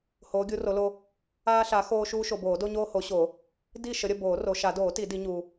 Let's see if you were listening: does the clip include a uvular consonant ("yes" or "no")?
no